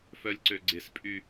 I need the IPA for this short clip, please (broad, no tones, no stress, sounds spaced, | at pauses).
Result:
f œ lʲ ǀ ø ɡ͡ǀ ɪ s pʼ y